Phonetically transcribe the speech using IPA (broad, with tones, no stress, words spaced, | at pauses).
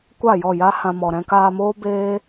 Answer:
kʷa˦˨jɔ˦˨ja˦hã˧ mɔ˨ɾɛ̃˧kaː˧moː˦ beː˦